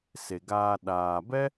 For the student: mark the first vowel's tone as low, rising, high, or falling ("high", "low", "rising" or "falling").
low